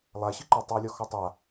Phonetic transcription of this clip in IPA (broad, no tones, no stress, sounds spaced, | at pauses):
lˠ a ɕ ɨ ǃ ɒ tˤ ɨ w lʲ ɒ x ɔ tˤ a